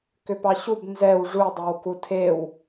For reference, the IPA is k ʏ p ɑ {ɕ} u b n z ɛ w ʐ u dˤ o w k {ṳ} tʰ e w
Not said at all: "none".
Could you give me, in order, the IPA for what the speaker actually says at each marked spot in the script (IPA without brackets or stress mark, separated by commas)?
ɕ, u